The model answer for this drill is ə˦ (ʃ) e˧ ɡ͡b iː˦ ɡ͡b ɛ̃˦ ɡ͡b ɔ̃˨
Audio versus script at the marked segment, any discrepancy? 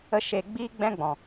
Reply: no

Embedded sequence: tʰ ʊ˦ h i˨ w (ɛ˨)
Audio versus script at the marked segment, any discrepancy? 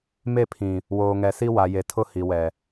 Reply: no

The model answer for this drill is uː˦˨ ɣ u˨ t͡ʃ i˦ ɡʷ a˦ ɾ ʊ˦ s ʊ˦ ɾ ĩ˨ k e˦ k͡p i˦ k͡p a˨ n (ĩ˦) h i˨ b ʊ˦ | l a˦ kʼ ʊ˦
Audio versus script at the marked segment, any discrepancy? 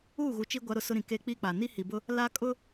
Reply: yes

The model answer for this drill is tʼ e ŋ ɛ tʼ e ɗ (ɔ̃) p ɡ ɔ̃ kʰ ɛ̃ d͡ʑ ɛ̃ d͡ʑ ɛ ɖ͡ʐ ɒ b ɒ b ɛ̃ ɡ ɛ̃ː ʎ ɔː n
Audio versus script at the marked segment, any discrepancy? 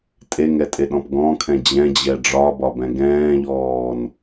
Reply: no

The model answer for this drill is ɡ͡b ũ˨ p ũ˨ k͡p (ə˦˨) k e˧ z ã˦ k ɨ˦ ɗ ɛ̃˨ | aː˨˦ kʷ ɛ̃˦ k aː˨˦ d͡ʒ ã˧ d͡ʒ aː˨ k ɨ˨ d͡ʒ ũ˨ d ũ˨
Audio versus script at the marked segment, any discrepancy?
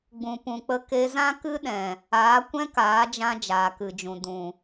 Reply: yes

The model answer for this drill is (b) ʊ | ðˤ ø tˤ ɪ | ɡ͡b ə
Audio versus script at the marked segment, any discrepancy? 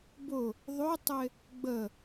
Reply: no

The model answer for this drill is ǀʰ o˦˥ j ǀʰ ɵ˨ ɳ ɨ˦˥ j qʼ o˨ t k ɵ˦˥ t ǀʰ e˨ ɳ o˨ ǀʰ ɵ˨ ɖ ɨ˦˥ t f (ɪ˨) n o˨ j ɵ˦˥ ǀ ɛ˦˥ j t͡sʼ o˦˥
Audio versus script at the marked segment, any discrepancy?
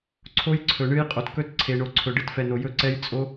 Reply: yes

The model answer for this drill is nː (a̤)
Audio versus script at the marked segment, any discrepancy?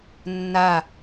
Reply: yes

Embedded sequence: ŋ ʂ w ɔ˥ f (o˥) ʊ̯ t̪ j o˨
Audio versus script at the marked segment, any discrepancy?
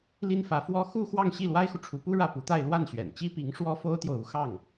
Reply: no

